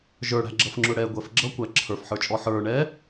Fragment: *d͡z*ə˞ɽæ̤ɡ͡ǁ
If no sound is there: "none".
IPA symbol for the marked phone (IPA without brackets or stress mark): ʒ